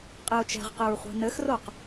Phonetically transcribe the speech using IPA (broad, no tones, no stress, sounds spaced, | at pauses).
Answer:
qʼ e ʊ̯ t͡ʃ ɛ̤ ʁ q ɘ ɹ χʷ e̤ n ɘ x r o q